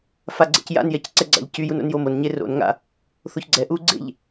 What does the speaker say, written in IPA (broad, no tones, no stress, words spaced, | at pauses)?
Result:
faɡ͡ǀɛ̰cja̰njɛc ǀɛɡ͡ǀa̰ʎcyjun o̰njomonɲe ro̰n ŋa̰ | θoçɡ͡ǀɛʔuː ɡ͡ǀḛʎ